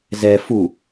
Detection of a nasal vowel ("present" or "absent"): absent